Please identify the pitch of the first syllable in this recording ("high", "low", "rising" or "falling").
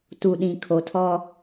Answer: low